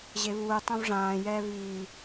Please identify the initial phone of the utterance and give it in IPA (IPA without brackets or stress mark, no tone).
ʑ